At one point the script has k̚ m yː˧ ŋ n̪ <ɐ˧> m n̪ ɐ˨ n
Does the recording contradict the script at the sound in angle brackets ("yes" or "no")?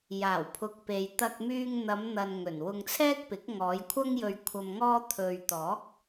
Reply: yes